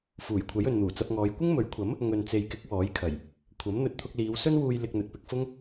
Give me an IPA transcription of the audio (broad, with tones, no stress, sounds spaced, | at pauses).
f uː˨˩ j kʷʰ ɐ˨˥ j ɵ˨ n n̪ uː˨˩ t͡s ɐ˧ p̚ ŋ ɔː˨˧ j kʷ ɪ˥ ŋ m ɵ˨˥ ɥ kʷʰ ɐ˨˥ m | ŋ ɵ˨ n t͡s e˨ j k ɪ˨˥ k̚ w ɔː˨˥ j kʰ ɐ˨˩ j | kʷʰ ɐ˨˥ m n̪ ɵ˧ t̚ t̪ʰ ʊ˧ k̚ l iː˨˧ w s ɵ˥ n w uː˧ j l ɪ˧ k̚ n̪ ɵ˨ t̚ p ɪ˧ k̚ f ʊ˥ ŋ